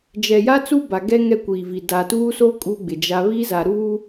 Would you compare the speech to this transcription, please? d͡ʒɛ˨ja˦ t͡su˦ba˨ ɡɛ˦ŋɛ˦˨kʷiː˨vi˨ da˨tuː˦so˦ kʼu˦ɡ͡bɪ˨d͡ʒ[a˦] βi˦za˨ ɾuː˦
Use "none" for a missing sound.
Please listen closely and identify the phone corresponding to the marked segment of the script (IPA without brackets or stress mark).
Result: a˦